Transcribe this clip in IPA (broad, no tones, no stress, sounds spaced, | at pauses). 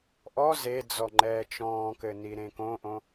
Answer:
ʔ ɔ z e d͡z ɔ ŋ͡ǃ ɛː t͡ʃ ɔ̃ː k ɘ n i ɾ ẽ k õ ʔ õ